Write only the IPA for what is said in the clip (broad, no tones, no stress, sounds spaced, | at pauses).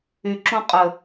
y ǁ õ qʼ ə